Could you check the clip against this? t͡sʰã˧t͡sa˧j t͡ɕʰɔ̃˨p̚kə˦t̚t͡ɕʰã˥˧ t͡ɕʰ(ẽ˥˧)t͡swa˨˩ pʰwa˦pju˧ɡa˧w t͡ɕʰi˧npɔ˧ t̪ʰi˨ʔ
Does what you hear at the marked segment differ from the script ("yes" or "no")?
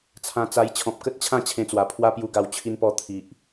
yes